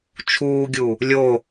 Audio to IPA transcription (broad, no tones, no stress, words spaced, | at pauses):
t͡ʃʰuːɡʲu | lʲo